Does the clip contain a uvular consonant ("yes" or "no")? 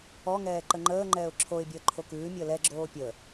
no